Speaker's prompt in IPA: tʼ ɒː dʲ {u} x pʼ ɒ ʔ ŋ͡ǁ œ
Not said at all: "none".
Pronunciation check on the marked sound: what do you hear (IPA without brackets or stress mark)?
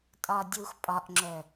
u